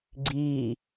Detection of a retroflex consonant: absent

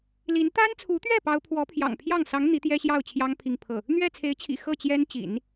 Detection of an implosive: absent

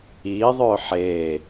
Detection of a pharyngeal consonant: present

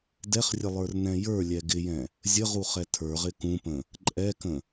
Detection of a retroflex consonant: absent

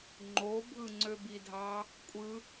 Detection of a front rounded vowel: present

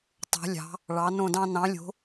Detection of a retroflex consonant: present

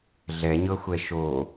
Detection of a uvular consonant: absent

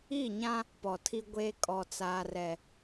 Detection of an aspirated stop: present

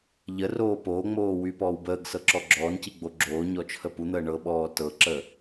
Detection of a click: present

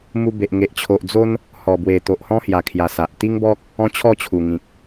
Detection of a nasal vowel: present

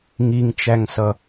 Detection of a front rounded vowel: absent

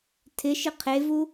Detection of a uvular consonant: present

